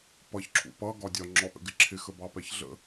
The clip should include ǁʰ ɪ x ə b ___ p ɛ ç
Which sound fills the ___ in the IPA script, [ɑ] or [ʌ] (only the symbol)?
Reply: ɑ